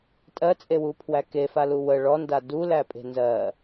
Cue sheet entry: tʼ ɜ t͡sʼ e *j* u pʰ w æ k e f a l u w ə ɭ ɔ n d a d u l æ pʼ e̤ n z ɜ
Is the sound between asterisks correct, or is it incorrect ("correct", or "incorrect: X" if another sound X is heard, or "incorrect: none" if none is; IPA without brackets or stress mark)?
incorrect: w